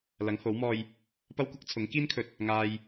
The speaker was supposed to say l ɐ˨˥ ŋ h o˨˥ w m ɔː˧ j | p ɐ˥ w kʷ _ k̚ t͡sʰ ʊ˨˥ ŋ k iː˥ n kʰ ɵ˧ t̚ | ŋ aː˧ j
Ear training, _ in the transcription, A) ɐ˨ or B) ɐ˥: B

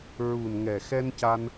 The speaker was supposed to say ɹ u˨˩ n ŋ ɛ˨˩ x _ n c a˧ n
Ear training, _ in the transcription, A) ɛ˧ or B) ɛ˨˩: A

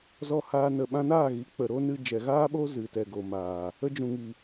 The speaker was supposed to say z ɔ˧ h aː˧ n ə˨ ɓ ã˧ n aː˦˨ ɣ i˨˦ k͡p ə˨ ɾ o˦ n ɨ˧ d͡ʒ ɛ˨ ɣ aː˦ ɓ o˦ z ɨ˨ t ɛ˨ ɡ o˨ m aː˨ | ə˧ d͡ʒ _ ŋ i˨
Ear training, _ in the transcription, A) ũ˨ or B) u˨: A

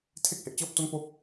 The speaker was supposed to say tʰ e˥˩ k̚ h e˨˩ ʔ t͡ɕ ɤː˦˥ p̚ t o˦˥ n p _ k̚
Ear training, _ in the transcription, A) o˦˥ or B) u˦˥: A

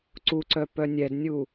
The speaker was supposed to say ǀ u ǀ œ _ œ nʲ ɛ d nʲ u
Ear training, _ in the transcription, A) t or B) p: B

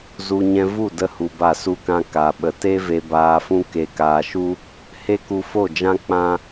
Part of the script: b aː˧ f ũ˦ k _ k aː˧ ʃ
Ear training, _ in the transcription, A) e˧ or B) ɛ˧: A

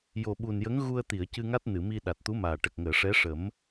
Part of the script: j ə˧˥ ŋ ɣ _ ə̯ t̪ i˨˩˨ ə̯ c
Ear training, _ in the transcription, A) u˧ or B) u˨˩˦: A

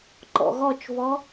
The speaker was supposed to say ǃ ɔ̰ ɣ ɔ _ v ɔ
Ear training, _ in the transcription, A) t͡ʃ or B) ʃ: A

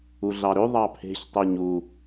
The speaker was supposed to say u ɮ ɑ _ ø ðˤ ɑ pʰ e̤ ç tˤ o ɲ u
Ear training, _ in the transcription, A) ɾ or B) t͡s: A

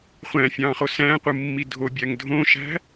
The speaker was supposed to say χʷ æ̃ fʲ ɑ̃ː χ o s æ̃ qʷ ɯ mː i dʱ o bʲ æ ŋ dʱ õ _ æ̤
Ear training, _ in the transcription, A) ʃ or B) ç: A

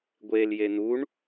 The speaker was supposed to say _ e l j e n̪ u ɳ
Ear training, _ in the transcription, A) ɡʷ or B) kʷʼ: A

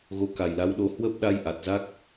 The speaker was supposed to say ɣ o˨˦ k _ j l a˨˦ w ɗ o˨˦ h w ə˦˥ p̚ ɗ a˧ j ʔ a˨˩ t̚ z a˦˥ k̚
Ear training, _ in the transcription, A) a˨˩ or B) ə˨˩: A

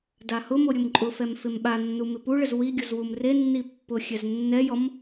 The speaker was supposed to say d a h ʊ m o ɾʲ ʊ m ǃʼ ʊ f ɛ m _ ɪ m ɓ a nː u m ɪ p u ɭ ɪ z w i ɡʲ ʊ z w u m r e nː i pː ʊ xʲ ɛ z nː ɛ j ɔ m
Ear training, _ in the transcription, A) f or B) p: A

